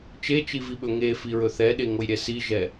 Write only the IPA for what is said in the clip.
t͡ʃ e t͡ʃ i v i ɓ ɵ ŋ e f i ɹ ɵ θ ɛ ɗ e ŋ o j ɾʲ ɛ s i ʒ ɛ

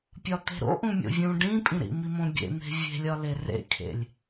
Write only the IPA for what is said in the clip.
pʲ ɒ t̪ e̤ ɾ o̰ ʔ ũ mʲ o̰ vʲ ũ ɖ ĩ pʼ ĩ ɾ ḭ m i m õ bʲ ḛ n̪ e̤ vʲ e̤ lʲ ɒ l e r ḛ kʰ ḛ lʲ

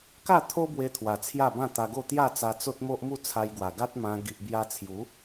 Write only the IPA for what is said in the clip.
k a˥˧ t̪ʰ o˦ b w e˧ t̪ʰ w a˨˩ t͡sʰ j a˥˧ b ã˥˧ t̪ a˧ ɡ o˥˧ t̪ j a˥˧ t͡s a˧ t͡s o˦ t̚ m o˦ ʔ m u˥˧ t͡sʰ a˧ j ɡ w a˨˩ ɡ a˦ t̚ m ã˧ ɡ i˨ ʔ b j a˧ t͡sʰ j u˨˦

